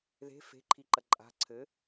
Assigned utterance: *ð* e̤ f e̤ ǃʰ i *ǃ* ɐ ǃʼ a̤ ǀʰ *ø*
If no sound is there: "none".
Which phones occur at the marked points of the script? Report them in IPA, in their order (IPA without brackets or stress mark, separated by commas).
ð, ǃ, ɘ